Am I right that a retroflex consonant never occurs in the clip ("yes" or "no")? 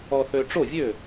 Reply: no